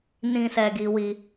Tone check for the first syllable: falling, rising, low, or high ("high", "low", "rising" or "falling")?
low